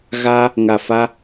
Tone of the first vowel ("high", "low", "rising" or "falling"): high